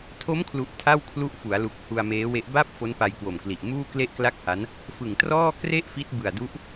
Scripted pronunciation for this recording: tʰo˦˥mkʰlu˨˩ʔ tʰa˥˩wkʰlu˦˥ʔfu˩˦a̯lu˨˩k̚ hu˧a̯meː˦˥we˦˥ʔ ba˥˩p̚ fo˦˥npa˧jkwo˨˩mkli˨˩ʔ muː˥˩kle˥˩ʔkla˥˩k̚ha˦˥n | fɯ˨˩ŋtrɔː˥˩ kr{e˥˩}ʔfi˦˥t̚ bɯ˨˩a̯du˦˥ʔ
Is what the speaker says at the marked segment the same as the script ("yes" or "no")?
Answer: yes